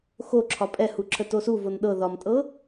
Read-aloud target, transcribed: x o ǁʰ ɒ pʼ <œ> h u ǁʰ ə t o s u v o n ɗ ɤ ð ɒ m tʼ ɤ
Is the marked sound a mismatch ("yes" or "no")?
yes